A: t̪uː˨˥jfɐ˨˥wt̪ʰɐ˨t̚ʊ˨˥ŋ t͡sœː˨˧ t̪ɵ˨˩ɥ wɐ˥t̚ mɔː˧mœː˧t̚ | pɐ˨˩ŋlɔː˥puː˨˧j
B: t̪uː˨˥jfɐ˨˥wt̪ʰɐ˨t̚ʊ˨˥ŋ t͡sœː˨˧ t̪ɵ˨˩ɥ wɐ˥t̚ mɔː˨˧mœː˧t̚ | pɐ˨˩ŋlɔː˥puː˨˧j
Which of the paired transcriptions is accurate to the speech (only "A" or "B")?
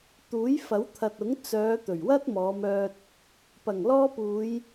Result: B